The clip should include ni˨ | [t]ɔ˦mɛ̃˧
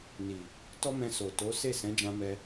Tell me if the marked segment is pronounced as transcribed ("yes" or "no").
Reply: yes